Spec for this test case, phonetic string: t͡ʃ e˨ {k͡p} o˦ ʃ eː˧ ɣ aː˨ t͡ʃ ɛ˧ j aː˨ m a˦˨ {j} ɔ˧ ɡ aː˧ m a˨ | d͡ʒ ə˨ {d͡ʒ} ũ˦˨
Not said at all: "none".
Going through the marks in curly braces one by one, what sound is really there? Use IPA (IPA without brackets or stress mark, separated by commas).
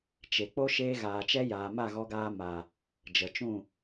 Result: k͡p, ɣ, t͡ʃ